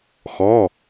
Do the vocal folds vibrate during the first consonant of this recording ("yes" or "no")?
no